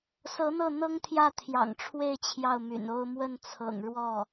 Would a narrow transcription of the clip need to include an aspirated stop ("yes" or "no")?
yes